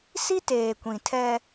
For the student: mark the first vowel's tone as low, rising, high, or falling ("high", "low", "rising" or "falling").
high